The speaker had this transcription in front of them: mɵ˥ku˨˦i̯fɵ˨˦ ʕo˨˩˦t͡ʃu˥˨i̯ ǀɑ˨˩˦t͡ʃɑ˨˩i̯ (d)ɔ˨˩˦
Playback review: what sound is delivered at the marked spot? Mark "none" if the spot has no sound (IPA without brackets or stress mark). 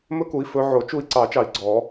ɡ͡ǀ